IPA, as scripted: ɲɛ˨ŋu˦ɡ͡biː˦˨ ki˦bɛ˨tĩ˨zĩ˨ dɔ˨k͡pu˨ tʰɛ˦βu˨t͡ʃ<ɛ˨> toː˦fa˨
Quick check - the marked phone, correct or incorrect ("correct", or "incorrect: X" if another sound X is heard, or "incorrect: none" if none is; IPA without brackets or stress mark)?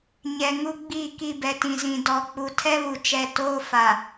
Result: correct